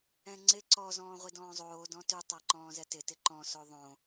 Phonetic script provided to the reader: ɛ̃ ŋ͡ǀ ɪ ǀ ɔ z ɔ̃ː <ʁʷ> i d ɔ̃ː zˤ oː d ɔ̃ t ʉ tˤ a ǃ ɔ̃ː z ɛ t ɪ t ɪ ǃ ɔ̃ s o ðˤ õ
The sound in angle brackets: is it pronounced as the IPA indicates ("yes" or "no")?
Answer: yes